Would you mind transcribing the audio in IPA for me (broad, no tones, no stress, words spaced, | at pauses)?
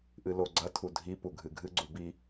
ʔɨloɡ͡ǀɐ tʰudʱi puɡʱɨɡʱɨ ɡ͡ǀubi